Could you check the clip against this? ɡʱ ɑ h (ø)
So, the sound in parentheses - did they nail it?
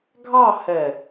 no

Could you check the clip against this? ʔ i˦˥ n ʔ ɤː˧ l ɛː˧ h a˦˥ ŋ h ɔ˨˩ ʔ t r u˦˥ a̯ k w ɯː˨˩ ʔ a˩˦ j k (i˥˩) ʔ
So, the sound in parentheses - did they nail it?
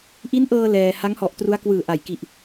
no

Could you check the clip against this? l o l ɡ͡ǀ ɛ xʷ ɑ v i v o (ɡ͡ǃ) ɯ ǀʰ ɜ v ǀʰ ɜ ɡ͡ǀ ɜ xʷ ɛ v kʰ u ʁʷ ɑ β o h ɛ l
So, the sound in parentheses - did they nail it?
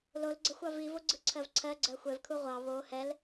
no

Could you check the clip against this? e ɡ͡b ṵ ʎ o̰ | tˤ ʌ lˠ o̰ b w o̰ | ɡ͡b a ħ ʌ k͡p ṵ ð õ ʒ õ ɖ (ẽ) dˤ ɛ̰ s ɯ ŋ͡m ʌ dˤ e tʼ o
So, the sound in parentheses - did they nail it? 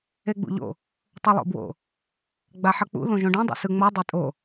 yes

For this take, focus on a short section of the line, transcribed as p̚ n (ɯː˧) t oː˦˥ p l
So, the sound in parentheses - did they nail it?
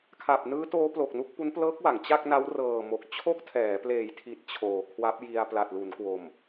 no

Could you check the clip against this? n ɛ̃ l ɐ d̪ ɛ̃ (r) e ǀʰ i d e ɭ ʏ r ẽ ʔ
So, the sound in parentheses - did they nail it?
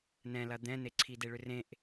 no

